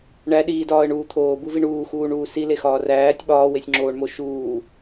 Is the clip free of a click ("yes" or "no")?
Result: no